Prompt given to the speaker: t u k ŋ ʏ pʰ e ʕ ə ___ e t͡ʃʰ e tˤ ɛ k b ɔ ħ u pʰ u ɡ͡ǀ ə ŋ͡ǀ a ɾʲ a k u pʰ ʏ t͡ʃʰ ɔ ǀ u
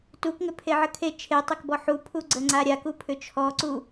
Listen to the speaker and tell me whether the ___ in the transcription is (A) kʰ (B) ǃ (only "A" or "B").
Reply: A